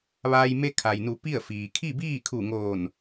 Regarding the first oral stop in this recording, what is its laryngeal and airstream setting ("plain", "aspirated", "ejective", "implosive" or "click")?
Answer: aspirated